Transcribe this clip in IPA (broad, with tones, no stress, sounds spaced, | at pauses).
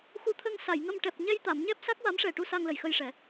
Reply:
x u˧ t̪ʰ ə˧ ŋ s a˨˩˨ j ŋ ə˧ m ʈ ɛ˨˩ p̚ ɲ ɛ˧ j t̪ a˨˩˨ m ɲ ɛ˦˥ p̚ s a˦˥ k̚ w a˧˥ m ʂ ɛ˨˩ ʈ u˧ s a˧ ŋ l ə˨˩ j x ə˧ j ʂ ɛ˨˩˦